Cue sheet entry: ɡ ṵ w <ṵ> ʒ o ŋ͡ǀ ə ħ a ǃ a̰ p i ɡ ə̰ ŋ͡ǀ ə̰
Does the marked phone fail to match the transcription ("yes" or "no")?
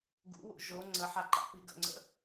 no